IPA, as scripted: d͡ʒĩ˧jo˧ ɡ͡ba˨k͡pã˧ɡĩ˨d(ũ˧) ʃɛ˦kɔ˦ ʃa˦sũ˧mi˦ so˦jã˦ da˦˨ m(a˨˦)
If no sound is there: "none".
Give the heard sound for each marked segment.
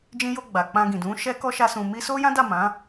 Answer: ũ˨˦, ã˨˦

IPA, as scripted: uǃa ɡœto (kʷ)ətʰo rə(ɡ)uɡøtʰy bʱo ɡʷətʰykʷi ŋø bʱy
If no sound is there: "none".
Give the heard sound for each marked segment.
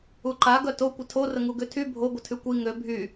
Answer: kʷ, ŋ

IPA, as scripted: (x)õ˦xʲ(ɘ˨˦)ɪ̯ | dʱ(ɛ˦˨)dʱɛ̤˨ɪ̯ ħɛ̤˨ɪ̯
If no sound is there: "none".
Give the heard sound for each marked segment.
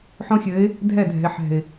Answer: ħ, ɘ˨˦, ɛ˦˨

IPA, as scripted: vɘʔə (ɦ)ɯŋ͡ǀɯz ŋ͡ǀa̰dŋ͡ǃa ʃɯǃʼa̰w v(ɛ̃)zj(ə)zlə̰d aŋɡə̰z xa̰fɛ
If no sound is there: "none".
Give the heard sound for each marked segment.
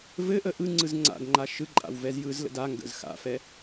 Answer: ʔ, ɛ, ɯ

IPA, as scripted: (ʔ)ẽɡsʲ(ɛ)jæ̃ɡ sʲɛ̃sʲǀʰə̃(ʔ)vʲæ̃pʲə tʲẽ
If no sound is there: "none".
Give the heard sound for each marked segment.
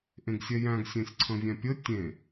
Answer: ʔ, ɛ, none

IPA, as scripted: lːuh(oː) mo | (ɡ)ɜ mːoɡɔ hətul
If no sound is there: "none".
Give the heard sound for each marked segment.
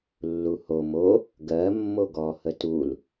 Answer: o, ɡ

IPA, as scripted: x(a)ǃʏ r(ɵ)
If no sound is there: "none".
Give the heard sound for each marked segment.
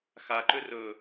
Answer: a, ɵ

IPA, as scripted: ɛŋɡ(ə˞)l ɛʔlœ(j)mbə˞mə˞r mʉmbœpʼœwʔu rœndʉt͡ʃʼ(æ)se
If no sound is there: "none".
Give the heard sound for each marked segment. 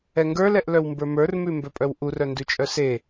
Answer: ə˞, w, œ

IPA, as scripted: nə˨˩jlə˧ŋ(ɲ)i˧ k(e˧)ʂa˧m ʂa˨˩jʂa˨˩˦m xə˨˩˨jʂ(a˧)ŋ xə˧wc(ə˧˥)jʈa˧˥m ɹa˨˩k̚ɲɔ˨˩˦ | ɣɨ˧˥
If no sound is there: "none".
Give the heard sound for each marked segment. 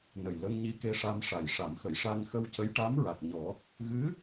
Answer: ɲ, e˧, a˧, ə˧˥

